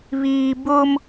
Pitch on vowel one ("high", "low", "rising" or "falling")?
low